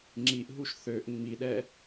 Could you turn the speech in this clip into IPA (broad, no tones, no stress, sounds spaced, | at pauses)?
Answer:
ŋ͡ǁ i ʔ ɦ u ʃ θ ø ʔ ŋ͡m i ɗ ɛ